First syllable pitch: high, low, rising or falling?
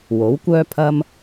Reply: rising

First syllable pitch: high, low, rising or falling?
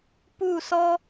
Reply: falling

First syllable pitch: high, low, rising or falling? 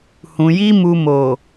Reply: low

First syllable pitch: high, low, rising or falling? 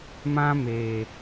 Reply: high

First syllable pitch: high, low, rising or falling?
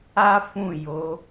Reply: high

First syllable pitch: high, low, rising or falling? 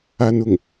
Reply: high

